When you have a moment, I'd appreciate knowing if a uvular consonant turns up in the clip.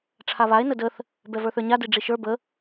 no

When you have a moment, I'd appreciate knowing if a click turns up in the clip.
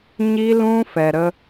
no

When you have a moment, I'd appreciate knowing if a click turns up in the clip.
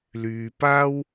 no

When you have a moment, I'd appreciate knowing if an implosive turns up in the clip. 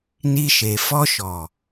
no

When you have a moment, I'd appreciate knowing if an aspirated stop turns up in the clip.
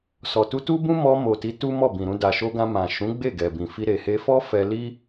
no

